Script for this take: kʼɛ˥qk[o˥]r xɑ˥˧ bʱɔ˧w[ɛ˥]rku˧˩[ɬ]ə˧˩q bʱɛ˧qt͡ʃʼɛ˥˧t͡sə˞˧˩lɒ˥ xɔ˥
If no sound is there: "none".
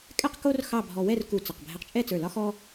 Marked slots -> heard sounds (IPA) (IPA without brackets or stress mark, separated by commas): o˥, ɛ˥˧, t͡s